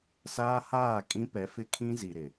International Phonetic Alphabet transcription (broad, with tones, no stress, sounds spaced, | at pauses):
s aː˦ h aː˦˨ kʼ ĩ˦ p ɛ˨˦ f ɪ˦ kʰ ĩ˦ z i˨ ɾ ɪ˨